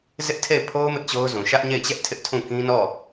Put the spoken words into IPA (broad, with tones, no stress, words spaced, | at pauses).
zɪ˦ʔtʰe˦˨ɪ̯pʰo˦ʊ̯ mɪ˦ʔt͡ɕo˦ʊ̯zũ˨ ʃä˦ʔɲe˦˨ɪ̯t͡ɕɛ˦ʔ tʰɪ˦ʔtʰũ˦˨ kĩ˦nɔ˦˨